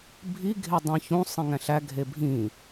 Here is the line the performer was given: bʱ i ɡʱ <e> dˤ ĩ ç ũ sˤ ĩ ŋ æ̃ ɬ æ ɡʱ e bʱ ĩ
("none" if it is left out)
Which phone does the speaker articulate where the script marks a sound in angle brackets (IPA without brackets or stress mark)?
e